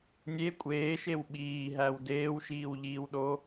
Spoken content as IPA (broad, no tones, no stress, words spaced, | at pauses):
nʲe kʷʼeːʃew ɓiːɦæw deːwʃiːwʎiːwɗo